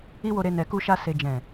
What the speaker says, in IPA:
i˦ w o˧ ɾ e˧ n ɛ˨ k u˧ ʃ a˧ s e˨ d͡ʒ ɛ̃˨

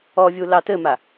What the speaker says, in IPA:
ɔ vʲ u l ɑ t ɘ m a

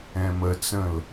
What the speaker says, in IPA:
ɛ̃ m ə t͡s ə̃ l

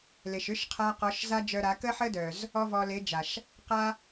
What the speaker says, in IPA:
l e˨ ʃ ʏ˦ ʃ qʰ a˧ q ɔ˨˦ ʃ z a˦ d͡ʒ œ˧ ɾ a˨˦ k ə˦ ħ ə˦ d œ˨ z | ɔ˦ v ɔ˧ l e˨˦ d͡ʒ a˨ ʃ | q a˦

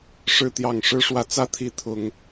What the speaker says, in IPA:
ʂ ɻ̩˥˨ t̪ j ɑ˥˨ ŋ ʂ ɻ̩˦ ʂ w ä˨˦ t͡s ä˦ t̪ʰ i˨˦ t̪ʰ ʊ˨˦ ŋ

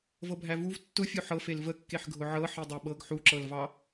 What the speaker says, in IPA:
v ɤ bʱ æ v u v tː ʊ fʲ o ħ ɤ f e l v ə kː e ħ ɡʱ ʊ ʕ ɤ ħ i dˤ æ ɓ ɤ ɡ ħ u ǁ ɤ l v ɑ

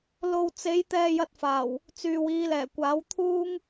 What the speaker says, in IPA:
l o˧ w t͡s e˨˧ j t̪ ɛː˧ j ɐ˧ t̚ f aː˨˩ w | t͡s yː˨ w iː˨˧ l ɛː˨˩ kʷ aː˨˥ w t̪ʰ uː˥ ŋ

